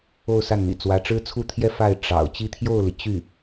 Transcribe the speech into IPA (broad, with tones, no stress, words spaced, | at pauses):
o˥˧ʊ̯ sa˥˩nn̪ḭ˨˩ t͡swä˧˥ʈ͡ʂɻ̩˥t͡sʰu˥˧t̪ʰjɛ˥˧ fa˥˩ɪ̯ ʈ͡ʂɑ̰˨˩ʊ̯ t͡ɕi˥˧t̪ʰjo˥˩ʊ̯li˩ t͡ɕy˥˩